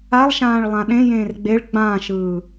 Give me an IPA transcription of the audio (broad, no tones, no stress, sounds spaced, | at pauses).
a lˠ ʃ ãː ɭ lˠ ã ɗ ẽ j ẽː r ɡ͡b e ɭ ɡ͡b ã ʃ ɯː